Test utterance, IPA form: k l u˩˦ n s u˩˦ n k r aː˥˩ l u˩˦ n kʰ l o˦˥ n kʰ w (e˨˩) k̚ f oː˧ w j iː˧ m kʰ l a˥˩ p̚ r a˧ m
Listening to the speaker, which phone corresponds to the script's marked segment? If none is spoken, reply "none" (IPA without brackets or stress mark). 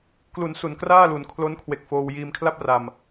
e˨˩